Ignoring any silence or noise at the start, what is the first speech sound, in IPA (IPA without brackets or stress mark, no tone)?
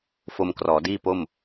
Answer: f